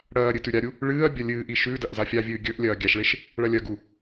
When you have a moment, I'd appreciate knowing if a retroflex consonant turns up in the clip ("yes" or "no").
yes